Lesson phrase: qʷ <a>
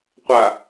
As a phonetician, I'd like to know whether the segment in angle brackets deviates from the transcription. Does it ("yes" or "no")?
no